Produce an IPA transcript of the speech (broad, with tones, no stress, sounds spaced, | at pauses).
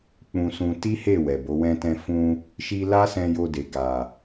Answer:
k͡p ũ˧ s ũ˧ t i˦ h e˦˨ w ɛ˨ b o˨˦ w ɛ̃˧ t ɛ̃˧ f ũ˧ | ʃ i˧ l a˦ s ɛ̃˧ j o˧ d e˨ ɡ a˨